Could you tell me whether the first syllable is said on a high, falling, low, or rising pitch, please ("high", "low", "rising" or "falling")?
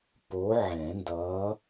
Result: rising